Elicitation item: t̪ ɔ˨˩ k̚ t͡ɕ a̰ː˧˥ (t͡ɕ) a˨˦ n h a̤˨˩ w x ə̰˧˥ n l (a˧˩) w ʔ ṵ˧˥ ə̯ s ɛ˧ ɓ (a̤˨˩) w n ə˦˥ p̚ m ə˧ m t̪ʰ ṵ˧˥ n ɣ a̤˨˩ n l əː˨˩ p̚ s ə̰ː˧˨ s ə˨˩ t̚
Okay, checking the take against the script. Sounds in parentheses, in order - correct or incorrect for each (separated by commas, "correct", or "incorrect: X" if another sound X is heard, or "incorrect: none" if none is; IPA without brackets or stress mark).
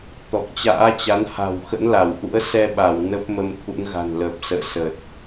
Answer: correct, correct, incorrect: a˧˩